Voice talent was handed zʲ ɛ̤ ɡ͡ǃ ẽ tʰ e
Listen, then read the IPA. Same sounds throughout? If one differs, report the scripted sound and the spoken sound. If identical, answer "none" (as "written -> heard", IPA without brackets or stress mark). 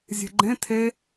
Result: none